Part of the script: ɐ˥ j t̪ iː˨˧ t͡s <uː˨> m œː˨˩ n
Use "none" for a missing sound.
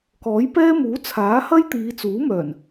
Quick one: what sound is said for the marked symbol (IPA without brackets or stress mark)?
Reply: uː˨˥